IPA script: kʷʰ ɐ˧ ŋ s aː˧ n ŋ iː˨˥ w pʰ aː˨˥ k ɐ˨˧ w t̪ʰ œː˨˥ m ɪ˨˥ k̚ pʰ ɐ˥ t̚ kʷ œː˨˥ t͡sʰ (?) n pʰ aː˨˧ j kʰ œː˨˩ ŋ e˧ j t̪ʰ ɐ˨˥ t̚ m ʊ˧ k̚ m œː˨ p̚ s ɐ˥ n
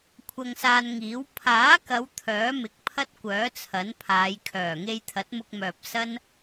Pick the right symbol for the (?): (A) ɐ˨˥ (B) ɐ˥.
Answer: A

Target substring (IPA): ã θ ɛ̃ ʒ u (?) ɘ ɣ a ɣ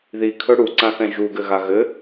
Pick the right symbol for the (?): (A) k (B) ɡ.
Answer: B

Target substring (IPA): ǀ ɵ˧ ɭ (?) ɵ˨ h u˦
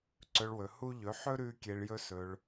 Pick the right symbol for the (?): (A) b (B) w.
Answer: B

